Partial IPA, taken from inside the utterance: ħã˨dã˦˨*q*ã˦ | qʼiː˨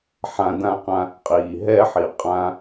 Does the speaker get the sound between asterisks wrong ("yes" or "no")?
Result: no